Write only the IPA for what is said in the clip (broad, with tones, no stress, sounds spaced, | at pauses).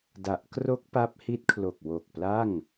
d a˨˩ ʔ k r o˦˥ k̚ p a˦˥ p̚ h i˦˥ t̚ kʰ l o˨˩ k̚ w o˨˩ k̚ p l a˥˩ ŋ